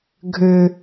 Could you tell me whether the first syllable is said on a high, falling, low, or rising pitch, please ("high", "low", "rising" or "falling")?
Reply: low